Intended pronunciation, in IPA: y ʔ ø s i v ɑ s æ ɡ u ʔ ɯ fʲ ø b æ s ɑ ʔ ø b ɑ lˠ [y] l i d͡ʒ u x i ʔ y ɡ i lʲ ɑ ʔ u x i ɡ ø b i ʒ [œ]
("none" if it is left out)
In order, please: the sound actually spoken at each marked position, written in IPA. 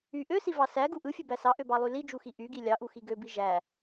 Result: y, æ

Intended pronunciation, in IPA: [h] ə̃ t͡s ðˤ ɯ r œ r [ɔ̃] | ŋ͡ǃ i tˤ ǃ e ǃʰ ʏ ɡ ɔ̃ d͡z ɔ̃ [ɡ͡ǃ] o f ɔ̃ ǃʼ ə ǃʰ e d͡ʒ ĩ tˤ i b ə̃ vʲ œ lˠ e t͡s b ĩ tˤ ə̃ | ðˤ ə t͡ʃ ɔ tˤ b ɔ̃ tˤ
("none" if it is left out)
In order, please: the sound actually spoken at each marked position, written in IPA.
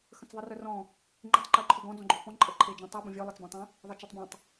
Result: x, ɔ̃, ɡ͡ǃ

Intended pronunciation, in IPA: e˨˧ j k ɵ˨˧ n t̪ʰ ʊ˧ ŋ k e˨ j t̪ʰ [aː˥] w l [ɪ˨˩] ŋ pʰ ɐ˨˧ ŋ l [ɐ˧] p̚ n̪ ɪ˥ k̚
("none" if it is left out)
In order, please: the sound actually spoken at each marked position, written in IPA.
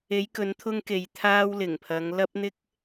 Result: aː˧, ɪ˨˩, ɐ˥

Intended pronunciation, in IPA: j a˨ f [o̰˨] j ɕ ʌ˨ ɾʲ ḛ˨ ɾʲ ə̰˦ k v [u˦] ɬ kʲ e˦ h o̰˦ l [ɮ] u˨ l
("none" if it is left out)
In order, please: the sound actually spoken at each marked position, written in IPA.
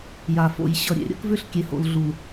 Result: o̰˨, ʏ˦, ɮ

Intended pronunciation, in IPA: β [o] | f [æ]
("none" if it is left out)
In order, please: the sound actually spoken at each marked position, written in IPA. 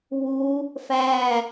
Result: u, æ

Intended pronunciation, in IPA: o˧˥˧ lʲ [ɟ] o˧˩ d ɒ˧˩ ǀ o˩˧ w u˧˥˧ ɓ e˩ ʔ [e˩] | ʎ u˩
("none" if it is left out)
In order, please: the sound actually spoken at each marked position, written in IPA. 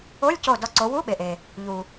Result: c, e˩

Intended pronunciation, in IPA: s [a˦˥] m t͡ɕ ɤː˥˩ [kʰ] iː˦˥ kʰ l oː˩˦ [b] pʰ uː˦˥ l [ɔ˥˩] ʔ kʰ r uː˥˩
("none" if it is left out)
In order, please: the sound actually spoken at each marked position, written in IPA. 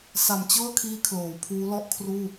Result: a˨˩, kʰ, w, ɔ˥˩

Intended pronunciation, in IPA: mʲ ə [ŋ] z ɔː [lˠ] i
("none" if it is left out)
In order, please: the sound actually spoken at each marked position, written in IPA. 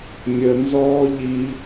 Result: n, ʎ

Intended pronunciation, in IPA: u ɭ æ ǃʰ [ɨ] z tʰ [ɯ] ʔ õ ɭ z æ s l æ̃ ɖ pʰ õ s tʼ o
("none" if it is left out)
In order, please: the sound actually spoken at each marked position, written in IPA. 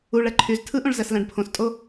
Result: y, ɯ

